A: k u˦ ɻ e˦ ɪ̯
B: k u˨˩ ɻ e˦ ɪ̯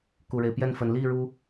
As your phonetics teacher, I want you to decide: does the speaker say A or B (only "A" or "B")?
B